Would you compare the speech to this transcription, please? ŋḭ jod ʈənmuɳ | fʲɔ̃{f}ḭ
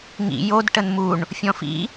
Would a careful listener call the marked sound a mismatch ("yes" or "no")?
no